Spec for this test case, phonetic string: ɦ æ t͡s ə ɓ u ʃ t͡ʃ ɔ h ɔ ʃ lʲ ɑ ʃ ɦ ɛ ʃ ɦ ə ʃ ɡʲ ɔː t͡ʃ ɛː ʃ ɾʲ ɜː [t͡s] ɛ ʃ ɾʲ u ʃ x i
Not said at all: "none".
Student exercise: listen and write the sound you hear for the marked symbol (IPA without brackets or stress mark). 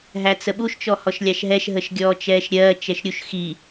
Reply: t͡ʃ